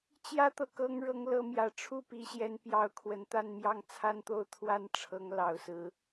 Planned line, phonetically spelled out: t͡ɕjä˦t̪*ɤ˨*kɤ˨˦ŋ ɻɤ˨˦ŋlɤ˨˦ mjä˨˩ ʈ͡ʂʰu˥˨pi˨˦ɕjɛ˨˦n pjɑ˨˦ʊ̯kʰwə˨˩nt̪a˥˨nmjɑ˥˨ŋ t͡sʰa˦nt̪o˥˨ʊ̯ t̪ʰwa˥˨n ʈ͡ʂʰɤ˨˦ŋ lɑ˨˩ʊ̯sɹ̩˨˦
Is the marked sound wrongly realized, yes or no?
no